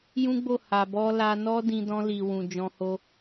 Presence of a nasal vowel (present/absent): present